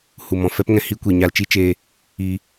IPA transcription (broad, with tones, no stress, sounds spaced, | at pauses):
h u˨ m ɔ̃˨ f ɛ˦ p ŋ ɛ̃˧ h i˦ kʷ i˨ ɲ a˧ l t͡ʃ i˦ t͡ʃ eː˧ | iː˧